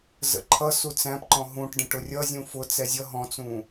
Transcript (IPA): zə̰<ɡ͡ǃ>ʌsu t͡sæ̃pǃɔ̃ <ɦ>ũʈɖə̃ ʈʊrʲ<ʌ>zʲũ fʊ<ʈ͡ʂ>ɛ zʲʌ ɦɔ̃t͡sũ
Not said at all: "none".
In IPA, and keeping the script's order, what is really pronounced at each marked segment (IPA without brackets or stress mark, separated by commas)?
ǃʰ, ɦ, ʌ, t͡s